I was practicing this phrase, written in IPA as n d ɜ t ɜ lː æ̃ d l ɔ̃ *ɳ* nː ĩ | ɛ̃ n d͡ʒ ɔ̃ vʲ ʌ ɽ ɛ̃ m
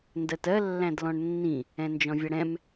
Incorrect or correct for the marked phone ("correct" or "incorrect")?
correct